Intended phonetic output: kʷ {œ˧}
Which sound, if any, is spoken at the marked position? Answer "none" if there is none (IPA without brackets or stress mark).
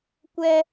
ɛ˧